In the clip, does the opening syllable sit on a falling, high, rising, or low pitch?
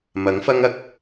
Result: rising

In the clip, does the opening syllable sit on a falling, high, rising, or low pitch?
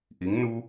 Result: rising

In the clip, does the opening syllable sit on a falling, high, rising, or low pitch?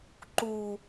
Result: high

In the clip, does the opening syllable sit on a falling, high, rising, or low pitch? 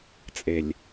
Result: low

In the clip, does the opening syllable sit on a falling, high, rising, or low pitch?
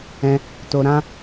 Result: high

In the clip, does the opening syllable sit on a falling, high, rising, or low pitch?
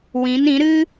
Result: rising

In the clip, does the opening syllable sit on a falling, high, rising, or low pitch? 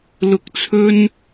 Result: low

